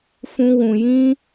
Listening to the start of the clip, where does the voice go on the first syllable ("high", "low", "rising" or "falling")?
high